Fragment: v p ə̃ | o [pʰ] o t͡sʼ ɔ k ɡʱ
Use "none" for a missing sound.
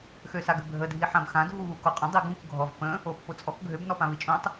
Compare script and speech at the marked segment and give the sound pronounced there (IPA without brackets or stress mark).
pː